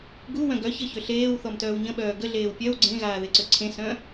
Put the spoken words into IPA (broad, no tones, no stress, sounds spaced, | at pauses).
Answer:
ɡ u w œ̃ ɡ œ ç ə ç ø ɬ eː w θ ɔ m t œː w ɲ ə̃ ɓ œː ɡ ə ɮ eː w pʲ œ w ɡ͡ǀ ẽ ɣ aː ð e ǀ ø ǀʰ ẽ s œ̃